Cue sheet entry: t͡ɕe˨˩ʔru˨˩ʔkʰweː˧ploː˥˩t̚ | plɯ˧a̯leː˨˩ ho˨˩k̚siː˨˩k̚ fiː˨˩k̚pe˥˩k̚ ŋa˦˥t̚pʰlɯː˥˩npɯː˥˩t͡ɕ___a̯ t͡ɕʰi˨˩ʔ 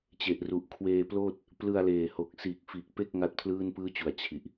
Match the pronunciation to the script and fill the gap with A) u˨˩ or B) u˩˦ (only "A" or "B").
A